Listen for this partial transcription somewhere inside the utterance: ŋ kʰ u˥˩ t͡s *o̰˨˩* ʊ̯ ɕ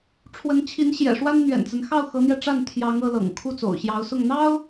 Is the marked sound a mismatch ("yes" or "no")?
no